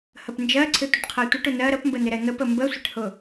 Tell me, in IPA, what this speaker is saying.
h ə p n d͡ʒ ɜ ǀʰ ɪ tʷ ə ʈ qʰ ɜ tʷ ɪ ʈ ʊ n ɜ ɾ ə p m b ə n ɪ ɾ ɛ n̪ ə p ə m b ə sʷ ɪ ʈ h ʊ

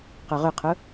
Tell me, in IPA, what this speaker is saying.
q œ ʁ ʏ qʰ ʊ

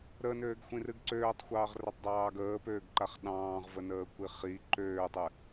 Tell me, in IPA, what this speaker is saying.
ɾ ə n øː ɡ xʷ ĩ r ɨ ɡ ǀ øː tˤ xʷ ɑː ʁ r ə tˤ dˤ ɑː ɡ əː p øː ɡ ǃ a χ ɗ ɑ̃ː ʁ v ə n əː kʷ i χ i ǃ øː tˤ ɨ

